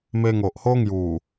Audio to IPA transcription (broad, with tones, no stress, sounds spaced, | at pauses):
m e˧ ŋ o˨ ʔ h o˦ ŋ j u˨˩